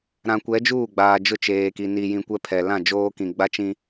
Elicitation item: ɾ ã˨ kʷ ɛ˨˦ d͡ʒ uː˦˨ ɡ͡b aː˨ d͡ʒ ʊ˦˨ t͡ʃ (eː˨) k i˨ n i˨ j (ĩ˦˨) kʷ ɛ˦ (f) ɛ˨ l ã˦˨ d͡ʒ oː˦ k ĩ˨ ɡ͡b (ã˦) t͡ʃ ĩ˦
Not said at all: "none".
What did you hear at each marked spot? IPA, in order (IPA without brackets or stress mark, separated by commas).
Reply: eː˨, ĩ˨, pʰ, a˦